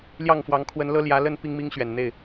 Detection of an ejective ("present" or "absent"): absent